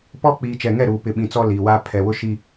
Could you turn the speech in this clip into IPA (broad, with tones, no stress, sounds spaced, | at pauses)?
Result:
p ɔ˦ k͡p i˨ t͡ʃ ɛ˨ ŋ ɛ˦˨ ɾ uː˨ p ɪ˨ ɓ ĩ˨ t͡s ɔ˦ l iː˨ w aː˦ pʰ ɛ˨ w ʊ˦ ʃ i˦